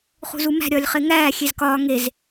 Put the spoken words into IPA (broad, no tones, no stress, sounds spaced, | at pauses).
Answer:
χ ṳ z u m æ̤ ɾʲ ɒː lʲ χ e ŋ æː xʲ e z k ɒː ŋ e z